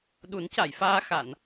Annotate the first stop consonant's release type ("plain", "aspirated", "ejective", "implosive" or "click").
implosive